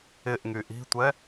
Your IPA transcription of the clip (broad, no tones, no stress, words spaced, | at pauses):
ɪʔŋy ʔi̤tʷɛ